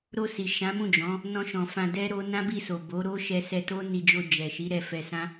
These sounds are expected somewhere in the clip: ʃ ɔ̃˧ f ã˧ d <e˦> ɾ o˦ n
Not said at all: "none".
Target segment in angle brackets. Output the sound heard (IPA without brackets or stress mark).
ɛ˦